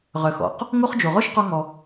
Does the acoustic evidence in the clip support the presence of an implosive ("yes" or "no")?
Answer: no